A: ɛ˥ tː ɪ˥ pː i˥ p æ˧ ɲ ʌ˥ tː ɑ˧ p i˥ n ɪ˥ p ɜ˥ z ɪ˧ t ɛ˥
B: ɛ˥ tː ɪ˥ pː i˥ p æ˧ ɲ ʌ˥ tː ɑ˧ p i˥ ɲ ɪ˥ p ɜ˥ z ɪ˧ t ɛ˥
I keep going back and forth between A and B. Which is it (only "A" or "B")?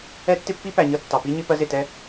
B